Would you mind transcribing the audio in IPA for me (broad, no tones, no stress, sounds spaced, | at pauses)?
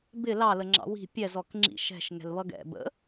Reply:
b ɪ l ɑ l ə ŋ͡ǁ ɑ̰ w i̤ pʲ ɛ z ɔ k ŋ͡ǁ ḭ ʃ ɛ̤ ʃ ŋ ɛ̤ l β ʌ ɡ ɛ̰ b ə̰